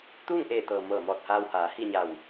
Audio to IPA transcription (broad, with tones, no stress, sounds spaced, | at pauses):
t̪ uː˥˨ ŋ ʔ eː˧˩ t̪ ɤː˩ m ɤː˧˩ m ɔː˧˩ t̚ h aː˧ w h aː˩˧ h i˥˨ ɲ a˧˩ w